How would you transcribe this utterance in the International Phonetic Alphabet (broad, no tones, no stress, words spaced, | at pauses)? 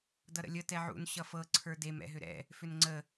dʌɾə̰lʲə tɛʕṵn ɕʌfɤ ǀʰə˞dem ɛ̰ɦʏɾɛ̰ | fʏnŋ͡ǀə